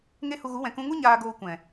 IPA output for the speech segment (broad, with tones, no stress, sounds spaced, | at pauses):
ŋ e˦ h u˧ ɣ u˨˦ w ɛ̃˨ k ũ˧ ŋ u˦ ɲ aː˧ ɡ oː˧ kʷ ɛ̃˨